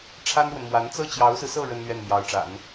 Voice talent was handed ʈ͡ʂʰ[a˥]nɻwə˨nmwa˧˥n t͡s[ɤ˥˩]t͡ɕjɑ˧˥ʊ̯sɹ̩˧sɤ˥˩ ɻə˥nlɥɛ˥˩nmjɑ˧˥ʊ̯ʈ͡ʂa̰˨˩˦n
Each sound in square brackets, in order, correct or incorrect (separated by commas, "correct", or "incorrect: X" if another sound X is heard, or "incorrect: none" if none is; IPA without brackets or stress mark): correct, correct